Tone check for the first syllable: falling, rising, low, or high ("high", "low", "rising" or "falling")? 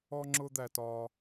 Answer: high